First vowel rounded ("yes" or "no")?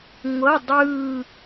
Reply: no